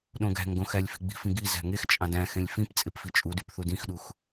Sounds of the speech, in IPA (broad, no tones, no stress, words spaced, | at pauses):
ɗõɡæ̤ŋɡõ xælʲfi̤ɡ͡bi̤fĩ ɡi zæ̤ŋext͡ʃʼɑ̃d æ̃xẽlʲ fĩp t͡sʼepfit͡ʃʼudyp θudĩxɗux